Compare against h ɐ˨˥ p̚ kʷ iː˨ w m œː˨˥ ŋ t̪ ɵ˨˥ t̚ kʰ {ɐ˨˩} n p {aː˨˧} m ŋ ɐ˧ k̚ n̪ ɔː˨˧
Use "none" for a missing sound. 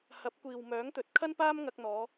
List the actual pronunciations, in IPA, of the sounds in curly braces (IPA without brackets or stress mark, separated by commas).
ɐ˥, aː˥